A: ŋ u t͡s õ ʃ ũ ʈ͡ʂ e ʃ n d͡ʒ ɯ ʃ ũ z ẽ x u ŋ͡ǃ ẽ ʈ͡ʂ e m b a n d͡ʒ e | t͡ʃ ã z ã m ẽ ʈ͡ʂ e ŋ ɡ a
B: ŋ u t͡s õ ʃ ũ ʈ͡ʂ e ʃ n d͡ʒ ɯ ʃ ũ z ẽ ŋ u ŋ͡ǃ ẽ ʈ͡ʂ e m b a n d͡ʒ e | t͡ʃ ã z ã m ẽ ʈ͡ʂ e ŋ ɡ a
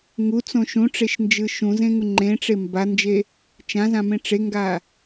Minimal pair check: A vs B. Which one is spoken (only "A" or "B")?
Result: B